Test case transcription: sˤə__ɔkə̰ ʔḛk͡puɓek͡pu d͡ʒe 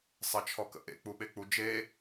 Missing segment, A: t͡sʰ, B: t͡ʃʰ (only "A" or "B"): B